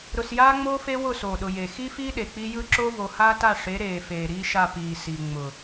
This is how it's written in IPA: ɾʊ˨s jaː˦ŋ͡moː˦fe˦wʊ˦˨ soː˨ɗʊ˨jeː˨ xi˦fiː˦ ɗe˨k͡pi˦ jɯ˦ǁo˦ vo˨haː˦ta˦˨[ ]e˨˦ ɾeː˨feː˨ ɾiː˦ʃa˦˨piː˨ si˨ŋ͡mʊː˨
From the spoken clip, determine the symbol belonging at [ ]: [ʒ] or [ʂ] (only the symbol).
ʂ